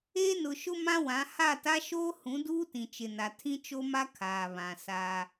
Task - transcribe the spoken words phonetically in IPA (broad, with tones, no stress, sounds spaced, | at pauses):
eː˦ n ʊ˨ ʃ ʊ˦ m ã˦ w ã˨˦ h a˦˨ t a˦ ʃ oː˦ h ũ˨˦ d uː˦ t ĩ˨ t͡ʃ ɪ˨ n a˨ tʰ ĩ˦ t͡ʃ o˦ m a˦ kʰ aː˨ β ã˨ s a˦